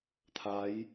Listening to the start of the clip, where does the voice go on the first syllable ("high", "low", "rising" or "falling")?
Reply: rising